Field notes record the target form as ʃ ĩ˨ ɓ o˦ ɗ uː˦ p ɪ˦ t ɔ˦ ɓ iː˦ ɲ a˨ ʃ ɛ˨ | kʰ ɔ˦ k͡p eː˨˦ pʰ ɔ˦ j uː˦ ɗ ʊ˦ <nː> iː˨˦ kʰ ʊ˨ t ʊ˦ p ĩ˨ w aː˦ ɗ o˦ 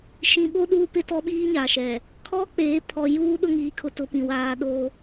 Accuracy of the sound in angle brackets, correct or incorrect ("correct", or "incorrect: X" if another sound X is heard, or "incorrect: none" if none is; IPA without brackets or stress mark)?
incorrect: ŋ